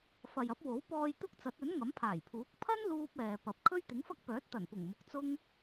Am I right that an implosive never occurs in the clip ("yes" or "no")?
yes